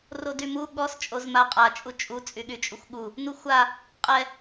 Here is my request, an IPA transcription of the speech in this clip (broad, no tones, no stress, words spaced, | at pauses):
rodymu ɠɔs t͡ʃʼozmaqʼa t͡ʃʼut͡ʃʼu t͡sʼyɠyt͡ʃʼuxʷɠu | nuxʷa | qʼɛ